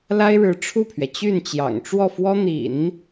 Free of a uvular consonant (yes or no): yes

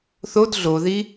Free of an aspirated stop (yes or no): yes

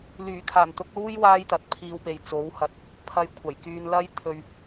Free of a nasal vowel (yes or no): yes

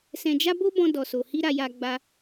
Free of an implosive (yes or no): yes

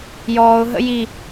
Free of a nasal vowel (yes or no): yes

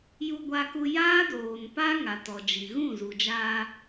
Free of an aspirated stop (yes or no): yes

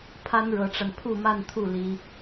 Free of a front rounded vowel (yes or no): yes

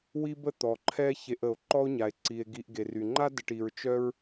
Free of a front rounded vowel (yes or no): no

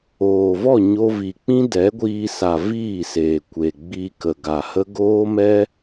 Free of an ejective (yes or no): yes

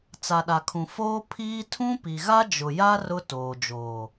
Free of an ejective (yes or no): yes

